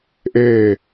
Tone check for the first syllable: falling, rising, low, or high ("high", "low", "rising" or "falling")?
falling